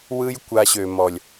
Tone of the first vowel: high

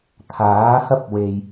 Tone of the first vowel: rising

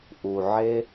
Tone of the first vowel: low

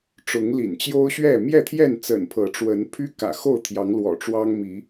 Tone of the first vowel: rising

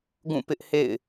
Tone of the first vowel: falling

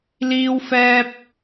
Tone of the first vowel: high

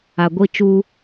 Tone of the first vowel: low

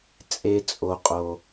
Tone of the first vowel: high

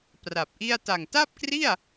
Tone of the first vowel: low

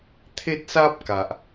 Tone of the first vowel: high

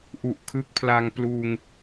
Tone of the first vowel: low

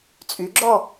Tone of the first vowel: rising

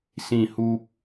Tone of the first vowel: low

